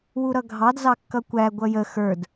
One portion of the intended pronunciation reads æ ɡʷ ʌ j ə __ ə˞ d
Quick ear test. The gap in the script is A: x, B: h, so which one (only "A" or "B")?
A